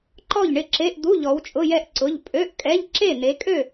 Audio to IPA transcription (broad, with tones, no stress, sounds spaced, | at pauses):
ǃ ɔ˥˨ ʎ ɳ ɪ˥˨ ǁ e˧˥˧ ʔ d̪ u˧˥˧ ʎ ɔ˨˦ w t͡ʃʼ ʊ˧˥˧ j ɛ˥˨ ʔ ǀ ʊ˧˥˧ ʎ pʼ ø˧˥˧ ʔ kʼ ɛ˧˥˧ ʎ ǁ e˥˨ n̪ e˨˦ kʼ ø˥˨